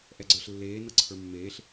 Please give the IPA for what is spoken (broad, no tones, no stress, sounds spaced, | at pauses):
ʔ ɛ ɡ͡ǀ ə˞ ɬ lː eː n ɤ ǀʰ ə˞ mː eː ɬ